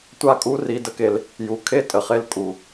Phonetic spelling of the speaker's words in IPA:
tʷ a˦ kʼ u˦ r i˧ d ə˦ k e˧ l | j u˨ kʰ e˦ tʼ ə˨ χ e˦ l kʼ u˨

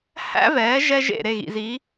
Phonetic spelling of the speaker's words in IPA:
h æ̰˥ v ɛː˩˥ ʒ ɛ˥ ʒ ḛ˥˩ ɾ e˥˩ ɣ ḭ˩ z i˩˥

